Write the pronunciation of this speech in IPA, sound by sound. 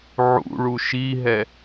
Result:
ʕ ṵ ɭ u ʃ i ɦ ɛ

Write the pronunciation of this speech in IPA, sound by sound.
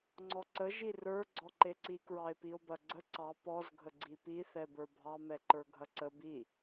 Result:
ŋ͡ǀ ɔ ǀ ə ʒ i r ə˞ ɡ͡ǀ ɔ ǃ e ǀ i k ɹ ɑ e̯ p i o̯ b ɐ ɡ͡ǀ ə ǀ ɑ p ɔ z ɡʱ ə ɡ͡ǀ i p i θ ɛ b ə˞ bʱ ɑ m ɛ ǃ ə˞ ɡʱ ɐ ǀ ə b i

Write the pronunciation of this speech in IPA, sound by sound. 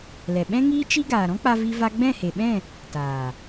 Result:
l ɛ˨ ɓ ɛ̃˦ ŋ iː˦ t͡ʃ i˦ ɡ aː˨ ɾ ɔ̃˦ k͡p a˧ v i˦ v a˦ ɡ͡b ɛ̃˦˨ h e˨ ɓ ɛ̃˦˨ | t aː˨

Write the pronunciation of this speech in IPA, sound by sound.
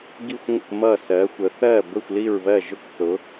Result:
ɡ i˥˩ xʷ ŋʷ ə̰˥˩ k m ʌ˥˩ s ɜ˩˥ xʷ ə˩˥ θ ɜ˥˩ b ə˥˩ xʷ l i˥˩ ɹ β ɜ˥˩ ʒ ʊ˥˩ k θ ʊ˩˥

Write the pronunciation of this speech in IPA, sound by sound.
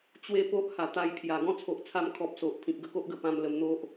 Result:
t͡ɕ w e˦ p o˦ ʔ h a˨˩ t̪ a˧ j pʰ j a˨˩ ɡ ɔ̃˦ t͡sʰ o˨ ʔ t͡sʰ a˧ m kʰ ɔ˨ p̚ s o˨ ʔ pʰ ĩ˨ k̚ ɡ ə˧ k o˦ ʔ ɡ ə˧ p ã˧ m l ə˧ m n̪ o˦ ʔ

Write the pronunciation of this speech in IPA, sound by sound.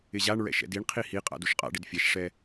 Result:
ɪ ʑ a ɳ ɹ ɛ̰ ʃ ɛ̰ d i ɳ qʰ i h i qʼ a̰ d u ʃ qʼ a̰ ɖ ɪ d fʲ ɛ ʃ ʂ ɛ

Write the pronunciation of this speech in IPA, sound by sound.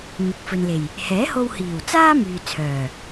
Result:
n̪ ɪ˨ k̚ f ɵ˨ n l e˨˩ j | h ɛː˨˥ h o˧ w h iː˨˩ w t͡s aː˥ m yː˨ t͡sʰ œː˨˩

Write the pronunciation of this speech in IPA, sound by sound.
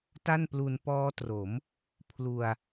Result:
t a˥˩ n p l u˧ n p ɔː˦˥ t r o˩˦ m | pʰ l u˧ a̯

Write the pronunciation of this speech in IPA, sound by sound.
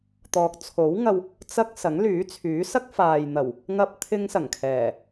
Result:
t̪ ɔː˨ k̚ t͡sʰ o˨˥ w ŋ ɐ˧ w | t͡s ɐ˥ k̚ s ɐ˨˥ ŋ l yː˨˥ t͡sʰ yː˨˥ s ɐ˥ k̚ f aː˨ j n̪ ɐ˨˩ w | ŋ ɐ˧ p̚ t̪ʰ ɪ˧ ŋ s ɐ˨˩ ŋ kʰ ɛː˨˩

